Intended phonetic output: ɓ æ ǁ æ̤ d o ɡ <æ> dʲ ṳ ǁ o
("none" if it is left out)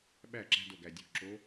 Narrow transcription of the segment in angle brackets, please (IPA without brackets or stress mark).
æ